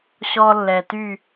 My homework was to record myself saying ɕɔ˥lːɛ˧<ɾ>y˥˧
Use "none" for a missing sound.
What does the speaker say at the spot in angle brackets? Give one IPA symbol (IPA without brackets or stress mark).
t